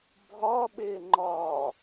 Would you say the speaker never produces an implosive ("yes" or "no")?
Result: no